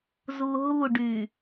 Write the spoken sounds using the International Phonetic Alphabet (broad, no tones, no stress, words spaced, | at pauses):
zuɦuɖy